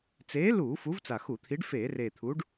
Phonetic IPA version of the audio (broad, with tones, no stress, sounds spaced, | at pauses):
t͡s eː˨˥ l uː˧˩˧ f u˨˥ v t͡s a˨˩ x u˧˩˧ t̪ʰ i˨˥ ɖ f eː˧˩˧ r eː˨˩ t̪ʰ u˨˥ ɖ